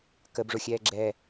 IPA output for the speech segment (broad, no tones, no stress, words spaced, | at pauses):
kəbʐʊxʲɛː ɡ͡ǁɛ